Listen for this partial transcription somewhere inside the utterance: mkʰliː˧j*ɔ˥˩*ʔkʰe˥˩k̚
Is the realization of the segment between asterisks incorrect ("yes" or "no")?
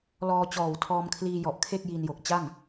yes